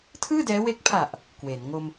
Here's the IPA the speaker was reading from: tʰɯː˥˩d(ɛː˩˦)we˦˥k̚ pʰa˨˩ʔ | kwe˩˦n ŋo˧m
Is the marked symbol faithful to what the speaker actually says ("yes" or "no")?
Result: no